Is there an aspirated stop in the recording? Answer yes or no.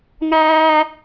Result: no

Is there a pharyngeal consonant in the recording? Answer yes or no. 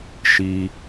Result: no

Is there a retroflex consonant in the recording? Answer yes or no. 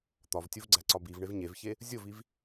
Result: yes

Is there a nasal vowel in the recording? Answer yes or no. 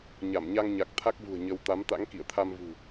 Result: no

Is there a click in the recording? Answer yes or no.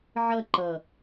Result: yes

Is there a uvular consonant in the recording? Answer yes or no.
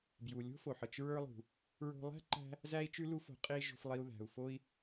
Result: yes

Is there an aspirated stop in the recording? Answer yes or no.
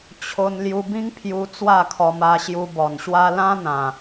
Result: yes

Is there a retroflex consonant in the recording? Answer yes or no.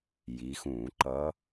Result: no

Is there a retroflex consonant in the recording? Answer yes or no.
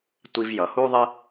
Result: no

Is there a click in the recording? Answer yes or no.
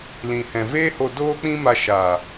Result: no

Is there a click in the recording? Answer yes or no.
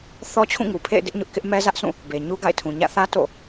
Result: no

